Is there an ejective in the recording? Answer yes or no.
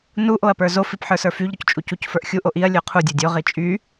yes